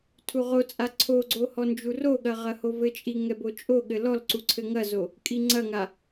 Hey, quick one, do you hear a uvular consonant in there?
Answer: yes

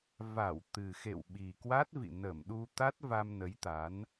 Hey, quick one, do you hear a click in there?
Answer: no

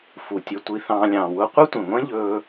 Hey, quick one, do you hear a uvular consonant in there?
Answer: yes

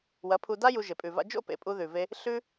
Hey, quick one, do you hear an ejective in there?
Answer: yes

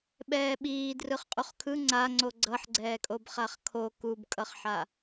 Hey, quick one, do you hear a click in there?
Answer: yes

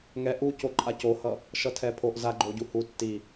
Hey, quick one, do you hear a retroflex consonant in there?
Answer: no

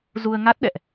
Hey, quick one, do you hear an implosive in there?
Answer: yes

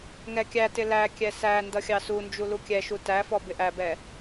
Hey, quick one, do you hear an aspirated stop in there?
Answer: no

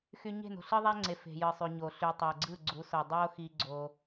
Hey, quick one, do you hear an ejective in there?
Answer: no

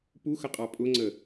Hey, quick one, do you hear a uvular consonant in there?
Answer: yes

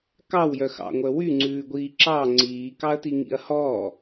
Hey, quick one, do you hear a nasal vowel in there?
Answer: no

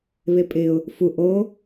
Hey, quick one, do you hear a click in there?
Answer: no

